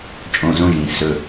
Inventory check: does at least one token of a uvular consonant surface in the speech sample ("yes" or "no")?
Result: no